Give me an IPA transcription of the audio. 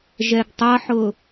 ʒɛɡtˤʌħʊ

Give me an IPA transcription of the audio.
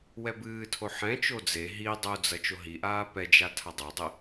wɛbɨːtʰo ħɛ̃t͡ʃo d͡ze ɦi dˤud͡zɐ t͡ʃoɦiʔaː pɛd͡ʒa tʰadˤadˤe

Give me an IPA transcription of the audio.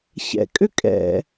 çɛ̰ kʼʏkʼɛ̰

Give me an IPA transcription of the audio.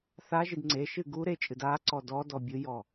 θaʒid ŋ͡ǀeʃɨ ɡu ɾet͡ʃʼɨd a ǀɔdɔdɔ bʲɨjɔ

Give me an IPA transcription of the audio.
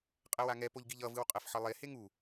qʼɛwaŋɛ poʎɡiʎʌ vɯwqʼɛfħʌlˠe heŋu

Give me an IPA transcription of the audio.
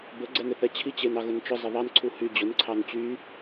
bə ɡ͡ǀɛneθɛt͡ɕʰi t͡ɕenɑɣʊnt͡ʃʊ zˤəðˤɑn ǀʰuhy d͡ʑʊn ǀʰɑnt͡ɕy

